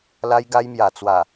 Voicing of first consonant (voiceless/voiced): voiced